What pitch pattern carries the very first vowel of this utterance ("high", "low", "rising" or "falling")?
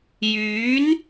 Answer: rising